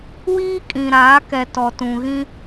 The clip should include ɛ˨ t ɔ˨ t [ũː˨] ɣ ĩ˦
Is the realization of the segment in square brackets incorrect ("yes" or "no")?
yes